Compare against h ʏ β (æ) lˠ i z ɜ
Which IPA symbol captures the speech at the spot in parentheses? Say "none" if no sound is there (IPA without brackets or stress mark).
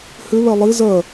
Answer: ɛ